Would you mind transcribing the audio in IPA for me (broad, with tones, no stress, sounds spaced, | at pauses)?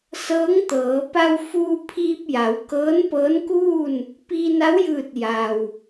s ɤː˧˥ ŋ t̪ ɤː˩˧ p a˧ w f uː˧ pʰ iː˧ p̚ j a˩˧ w k ɤː˧˥ n p ɤː˧˥ n k uː˥˨ n | p iː˧ n a˧˥ w j ɯː˧˩ t̚ j a˩ w